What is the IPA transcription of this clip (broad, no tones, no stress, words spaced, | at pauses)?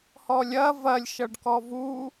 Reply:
hɔlʲɐ vɐlʲ ʃʌɖkɔvu